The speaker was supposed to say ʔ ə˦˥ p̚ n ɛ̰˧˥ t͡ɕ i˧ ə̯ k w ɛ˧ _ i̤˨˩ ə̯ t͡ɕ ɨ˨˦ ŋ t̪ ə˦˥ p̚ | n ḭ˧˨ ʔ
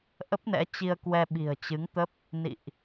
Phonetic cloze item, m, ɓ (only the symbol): ɓ